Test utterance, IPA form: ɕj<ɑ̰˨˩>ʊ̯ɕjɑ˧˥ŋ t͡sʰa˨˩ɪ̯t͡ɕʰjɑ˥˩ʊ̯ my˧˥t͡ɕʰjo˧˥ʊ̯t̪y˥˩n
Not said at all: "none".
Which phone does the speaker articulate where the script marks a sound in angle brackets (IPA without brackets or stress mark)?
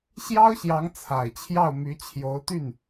ɑ˥